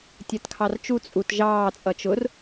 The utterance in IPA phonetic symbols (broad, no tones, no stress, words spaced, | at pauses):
tʲɜtkʰɑrt͡ʃu t͡sʼut ʒɑː t͡sʼʌt͡ʃʊr